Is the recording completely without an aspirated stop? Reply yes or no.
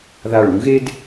yes